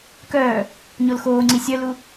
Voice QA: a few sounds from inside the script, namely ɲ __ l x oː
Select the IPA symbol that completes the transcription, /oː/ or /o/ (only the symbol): o